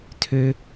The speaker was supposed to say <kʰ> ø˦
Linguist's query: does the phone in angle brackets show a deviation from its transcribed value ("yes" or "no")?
yes